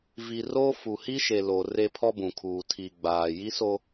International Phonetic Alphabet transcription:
v i˨ r o˦ f u˨ h i˦ ʃ e˨ l o˨ r e˦ pʰ ɔ˦ b ũ˨ kʰ uː˨ tʰ i˨ ɡ͡b aː˨ j i˦ s o˦

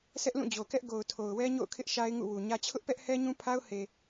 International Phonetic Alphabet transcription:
sʰ ɛ˦ ʔ l ũ˦˨ d͡ʑ o˨ k ɛ˦ ʔ ɡ o˨ ʊ̯ tʰ o˨ ʊ̯ w ɛ˦ ɲ o̰˦˨ ʊ̯ kʰ ɪ˦ ʔ ʃ a˦ ɪ̯ ŋ ṵ˦˨ w u˨ ɲ ä˦ t͡ɕʰ ʊ˦ ʔ p ɛ˦ ʔ h ɛ˦ ɲ ũ˦ pʰ a˦ ʊ̯ h e˨

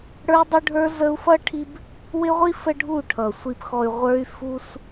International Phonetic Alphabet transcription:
ɽ ə˞˧ dˤ ʊ˧ ɖʱ ə˞˧ z ə˧ u̯ f ʌ˦ ʈʰ i˦ b | w ɪ˧ ʁʷ i˧ f ə˦ ɖʱ u˦˨ ʈʰ ʌ˨ sʷ i˨ p x ɔ˨ y̯ ʁʷ ə˞˧ y̯ f u˧ s

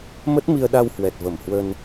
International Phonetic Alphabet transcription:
m ə˦˥ t̚ m i˧ ə̯ ɗ a˧ w h w ɛ˨˩ t̚ v ə˧˩ m h w ə˧ n

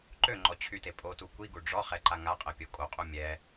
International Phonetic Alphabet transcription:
ǃ ø ŋ͡ǃ ɔ t͡ɕʰ y t e pʼ o t u kʷ i ɡ u ɖ͡ʐ ɔ χ ɛ ǃ a ŋ a qʼ ɛ pʲ o kʼ o qʼ u mʲ ɛ

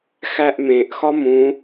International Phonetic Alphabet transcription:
x æ ʔ m ẽ ʔ x ɒ m ũ

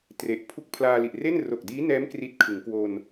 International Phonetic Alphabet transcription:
t r e˨˩ ʔ pʰ u˦˥ k̚ pʰ l aː˧ l i˨˩ ʔ r e˥˩ n r o˨˩ k̚ d iː˦˥ n ɛː˦˥ m k r i˦˥ t̚ kʰ ɯ˩˦ ŋ k w o˧ n

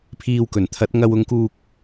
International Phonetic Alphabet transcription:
pʰ iː˧ w k ɵ˨˩ n t̪ʰ ɐ˨˥ t̚ ŋ ɐ˧ w ʊ˨˧ ŋ k uː˧ k̚

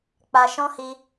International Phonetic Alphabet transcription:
k͡p a˨ ʃ ɔ̃˧ h i˧

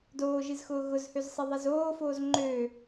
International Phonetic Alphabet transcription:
d oː ʒ ɨ z x ʊː ɣ ʊ z h ø z sˤ ɛ ðˤ ɛ z oː f oː z ŋ͡ǃ ø

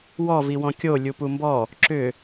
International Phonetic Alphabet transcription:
w ɔ v i w ɔ̃ kʲ o lʲ u p u m b ɔ | ǁ ʏ

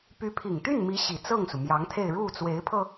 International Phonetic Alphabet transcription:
p y˧˥ pʰ i˨˩ ŋ t̪ y˥˩ n m i˧˥ ɕ i˨˩ t͡s ɤ˥˩ ŋ s u˩ m j ɑ˧˥ ŋ t̪ʰ e˥˧ ɪ̯ ɻ u˥˩ t͡s w e˧˥ ɪ̯ pʰ ɤ˧

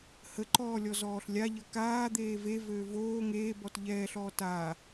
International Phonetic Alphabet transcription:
h ə ǃ ɔː lʲ ɔ z ɔː ɬ lʲ a ʎ ə k aː d̪ eː v e v øː v oː ŋ eː b ɔ t ʎ ɛː ɬ ɔː t a

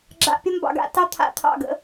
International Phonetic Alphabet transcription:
ɡ͡ǁ a̰˨ pʲ ə˦ m b ɑ̰˨ ɡ a̰˦ t ɑ˦ t̪ʰ a̰˨ t̪ʰ ɑ̰˦˨ ɡ ə̰˦

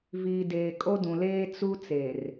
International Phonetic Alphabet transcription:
v iː˨ d eː˨ kʼ o˦ d ũ˨ l eː˦ t͡s u˦ t͡s e˨ r

